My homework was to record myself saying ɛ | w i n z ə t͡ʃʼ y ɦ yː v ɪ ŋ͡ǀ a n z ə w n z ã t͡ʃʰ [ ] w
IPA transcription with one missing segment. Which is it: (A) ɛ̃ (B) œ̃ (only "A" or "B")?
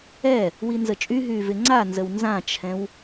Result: A